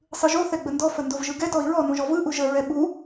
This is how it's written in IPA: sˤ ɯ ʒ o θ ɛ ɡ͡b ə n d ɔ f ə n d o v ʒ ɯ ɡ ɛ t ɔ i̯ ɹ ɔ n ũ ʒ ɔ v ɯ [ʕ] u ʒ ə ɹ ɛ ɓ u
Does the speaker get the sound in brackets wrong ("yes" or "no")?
yes